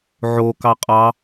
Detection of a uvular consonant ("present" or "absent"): present